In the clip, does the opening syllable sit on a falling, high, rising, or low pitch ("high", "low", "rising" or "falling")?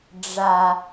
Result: low